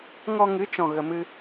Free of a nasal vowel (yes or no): no